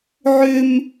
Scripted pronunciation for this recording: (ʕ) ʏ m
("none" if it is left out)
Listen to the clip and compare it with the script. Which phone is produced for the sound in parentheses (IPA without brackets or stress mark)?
ʕ